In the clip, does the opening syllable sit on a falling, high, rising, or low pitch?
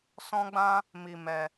high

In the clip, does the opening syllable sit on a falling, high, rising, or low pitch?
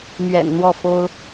low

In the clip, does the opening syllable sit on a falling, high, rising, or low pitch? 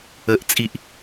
low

